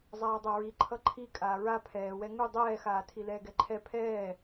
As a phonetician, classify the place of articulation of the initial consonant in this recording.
alveolar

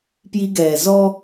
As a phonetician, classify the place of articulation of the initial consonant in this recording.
labial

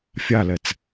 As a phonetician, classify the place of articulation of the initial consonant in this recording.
labial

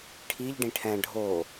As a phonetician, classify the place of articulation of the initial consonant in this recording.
retroflex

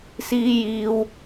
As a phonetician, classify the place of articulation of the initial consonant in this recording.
alveolar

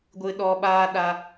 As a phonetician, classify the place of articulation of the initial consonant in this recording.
velar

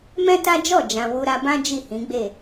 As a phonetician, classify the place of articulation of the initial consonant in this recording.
labial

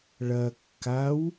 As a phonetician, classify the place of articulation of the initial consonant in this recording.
retroflex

